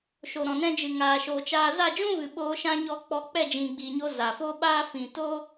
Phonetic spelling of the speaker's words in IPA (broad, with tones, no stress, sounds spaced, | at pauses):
ʃ o˨ ɾ ɔ̃˨ n ɛ̃˧ d͡ʒ ɨ˨ ŋ aː˨ ʃ oː˨ t͡ʃ aː˧ z a˦˨ d͡ʒ ũ˦ v ɨ˨ ɓ oː˧ ʃ ã˦ ɲ ɔ˦ k͡p ɔ˧ k͡p ɛ˦˨ d͡ʒ ĩ˨ ɡ͡b iː˨ ɲ o˧ z a˨ f o˦ ɓ aː˦ f ĩ˨ t o˦